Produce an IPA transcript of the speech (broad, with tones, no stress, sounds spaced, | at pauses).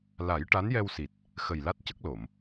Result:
l a˨˩˦ j ʈ a˧˥ n j ɛ˧ w s i˨˩ t̚ | x ə˨˩ j l a˦˥ t̚ c ə˦˥ k̚ l o˨˩˨ m